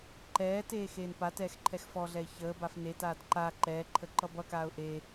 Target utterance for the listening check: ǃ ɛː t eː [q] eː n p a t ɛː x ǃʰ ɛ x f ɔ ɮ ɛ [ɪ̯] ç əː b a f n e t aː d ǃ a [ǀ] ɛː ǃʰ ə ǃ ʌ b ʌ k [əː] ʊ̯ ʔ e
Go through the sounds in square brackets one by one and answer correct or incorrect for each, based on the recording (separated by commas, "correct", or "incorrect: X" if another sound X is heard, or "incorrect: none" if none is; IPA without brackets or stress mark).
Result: incorrect: x, correct, incorrect: ǃ, incorrect: aː